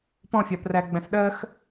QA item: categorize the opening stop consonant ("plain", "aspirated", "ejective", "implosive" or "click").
plain